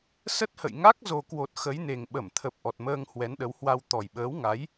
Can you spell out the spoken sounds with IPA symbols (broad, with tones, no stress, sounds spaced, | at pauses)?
s ə˦˥ t̚ h ə̰˧˨ j ŋ a˦˥ k̚ z o˨˩ k w o˨˩ t̚ x ə˨˦ j n e˨˩ ŋ ɓ ə˧˩ m t̪ʰ ə˨˩ p̚ ʔ ɔ˨˩ t̚ m əː˧ ŋ h w ɛ˨˦ n ɗ ə˨˦ w h w a˧ w t̪ ɔ˨˩ j ɓ əː˨˦ w ŋ a˨˦ j